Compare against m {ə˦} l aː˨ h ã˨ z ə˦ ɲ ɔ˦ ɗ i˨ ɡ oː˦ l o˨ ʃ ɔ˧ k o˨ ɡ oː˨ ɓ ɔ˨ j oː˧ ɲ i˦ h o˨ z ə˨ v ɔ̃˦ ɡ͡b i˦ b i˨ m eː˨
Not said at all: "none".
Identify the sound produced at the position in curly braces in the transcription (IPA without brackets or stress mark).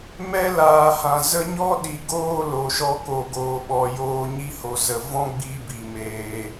ɛ˦